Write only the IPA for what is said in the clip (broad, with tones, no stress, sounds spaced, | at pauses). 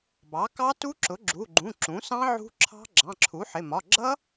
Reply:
b ɑ˩˥ k ɑ˦˥ t u˦˥ ǁ ʊ˩˥ ɡ͡ǁ u˩˧˩ ɡ͡ǃ ũ˩˧˩ ǁ ũ˩˥ s ɑ̃˦˥ ʕ ṳ˦˥ ǁʰ ɑ̤˦˥ ɡ͡ǁ ɑ̃˩˧˩ ǁʰ u˩˥ ħ ɪ˩˧˩ m ɒ˩˧˩ ɡ͡ǁ ʌ˦˥